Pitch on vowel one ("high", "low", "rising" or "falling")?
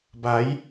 rising